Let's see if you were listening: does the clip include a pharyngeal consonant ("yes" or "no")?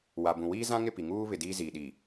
no